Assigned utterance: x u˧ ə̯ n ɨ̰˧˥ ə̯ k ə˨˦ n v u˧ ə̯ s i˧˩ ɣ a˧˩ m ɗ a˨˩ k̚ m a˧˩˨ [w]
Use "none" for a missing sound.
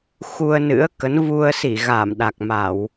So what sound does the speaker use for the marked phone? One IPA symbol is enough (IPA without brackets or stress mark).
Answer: w